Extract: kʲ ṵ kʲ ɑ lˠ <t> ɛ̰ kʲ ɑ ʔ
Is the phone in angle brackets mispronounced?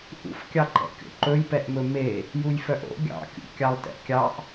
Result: no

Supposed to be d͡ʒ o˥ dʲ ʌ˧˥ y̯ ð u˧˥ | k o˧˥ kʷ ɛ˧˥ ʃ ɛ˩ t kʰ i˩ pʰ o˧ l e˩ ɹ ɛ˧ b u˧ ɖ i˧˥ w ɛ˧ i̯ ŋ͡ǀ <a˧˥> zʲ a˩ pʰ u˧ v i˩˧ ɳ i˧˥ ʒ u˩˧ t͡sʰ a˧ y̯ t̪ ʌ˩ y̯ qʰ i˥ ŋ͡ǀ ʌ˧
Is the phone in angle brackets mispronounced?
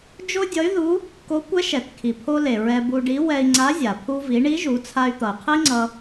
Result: no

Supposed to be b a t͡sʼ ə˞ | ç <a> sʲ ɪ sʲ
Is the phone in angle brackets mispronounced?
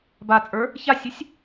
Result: no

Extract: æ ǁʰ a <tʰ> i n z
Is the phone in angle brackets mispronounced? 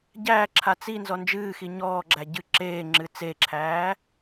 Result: yes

